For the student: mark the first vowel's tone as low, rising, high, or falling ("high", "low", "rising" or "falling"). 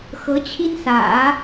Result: rising